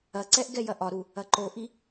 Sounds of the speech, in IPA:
ɐǀɛʔ ɡɛjɐʔɒɾu | ɐǃoʔi

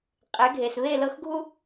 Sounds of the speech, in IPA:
qʼe˩˥ɡʱe˩s βe˥˩lɤ˥˩xɡʱu˥

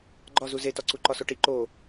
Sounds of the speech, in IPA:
ɡ͡ǃɒzu zetɒǀu ǃɒsoʈi ǃo

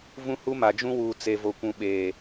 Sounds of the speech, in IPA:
vũ˦hu˦ ma˨d͡ʒũ˦wuː˨ t͡se˨vo˨kʷũ˨ ɓeː˨

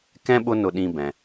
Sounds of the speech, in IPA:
kɛ̃˥ ɓʊ˥nʊ˧ɗĩ˧bɛ̃˩

